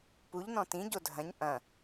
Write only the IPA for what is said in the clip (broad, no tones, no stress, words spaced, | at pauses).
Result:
puʎ nɔ̃tĩ ɟodʱɐ̃ɲ ʔɐ̃